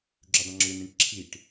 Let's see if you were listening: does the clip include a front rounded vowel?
yes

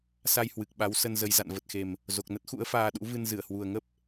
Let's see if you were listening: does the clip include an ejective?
no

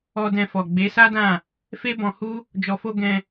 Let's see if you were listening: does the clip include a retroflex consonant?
no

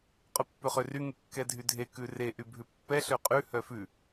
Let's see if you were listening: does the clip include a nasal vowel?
no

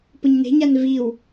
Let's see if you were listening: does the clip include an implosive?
no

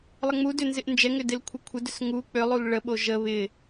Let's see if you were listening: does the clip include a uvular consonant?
no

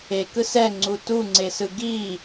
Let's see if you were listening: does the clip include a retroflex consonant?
no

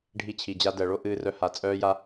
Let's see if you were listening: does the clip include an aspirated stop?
yes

